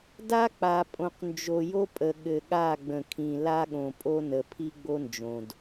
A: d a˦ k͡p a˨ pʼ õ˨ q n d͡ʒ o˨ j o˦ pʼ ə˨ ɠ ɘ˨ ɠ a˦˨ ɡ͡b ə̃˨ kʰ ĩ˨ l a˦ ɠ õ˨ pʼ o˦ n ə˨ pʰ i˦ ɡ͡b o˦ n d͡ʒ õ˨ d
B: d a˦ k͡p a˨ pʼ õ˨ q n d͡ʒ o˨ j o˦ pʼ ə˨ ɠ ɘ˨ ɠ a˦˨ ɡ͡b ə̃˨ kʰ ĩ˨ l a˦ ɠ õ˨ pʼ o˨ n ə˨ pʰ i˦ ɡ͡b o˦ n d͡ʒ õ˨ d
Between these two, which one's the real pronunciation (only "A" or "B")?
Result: A